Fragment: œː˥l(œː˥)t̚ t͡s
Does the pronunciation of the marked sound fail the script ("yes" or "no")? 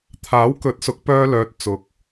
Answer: yes